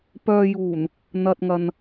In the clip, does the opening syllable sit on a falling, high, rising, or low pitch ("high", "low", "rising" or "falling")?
low